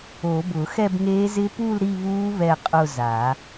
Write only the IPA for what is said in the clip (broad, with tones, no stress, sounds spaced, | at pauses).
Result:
o˨˩˦ b ʊː˨˩˦ x ɛ˥˧ b ŋ eː˦˥ z ɪ˦˥ p u˥˧ l ɾ i˥˧ β uː˦˥ β ɛ˥˧ qʼ ʊ˥˧ z aː˨˩˦